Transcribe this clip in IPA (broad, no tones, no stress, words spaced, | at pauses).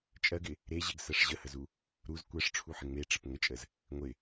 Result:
t͡ʃʼɜɡɪ | ɾeʑeɡsɜʂ ʑəhəzu | ɾuz kʷɜʂʈ͡ʂʰuħɪ ŋ͡meʈ͡ʂɪp ŋət͡ʃʼəz | ŋʷɪ